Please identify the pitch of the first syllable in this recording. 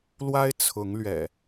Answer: high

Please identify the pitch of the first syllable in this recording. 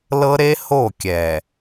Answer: high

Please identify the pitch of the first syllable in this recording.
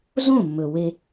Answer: falling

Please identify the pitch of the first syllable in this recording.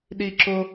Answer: high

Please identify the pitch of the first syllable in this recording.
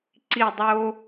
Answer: falling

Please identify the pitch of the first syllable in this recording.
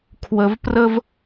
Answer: low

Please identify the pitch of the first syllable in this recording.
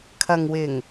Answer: low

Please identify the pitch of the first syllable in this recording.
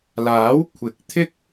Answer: rising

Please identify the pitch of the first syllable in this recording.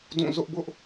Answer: falling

